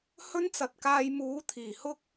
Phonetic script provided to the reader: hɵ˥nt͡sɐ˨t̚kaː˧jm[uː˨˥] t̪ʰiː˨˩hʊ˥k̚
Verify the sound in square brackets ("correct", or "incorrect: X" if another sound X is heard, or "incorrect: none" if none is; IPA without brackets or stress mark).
correct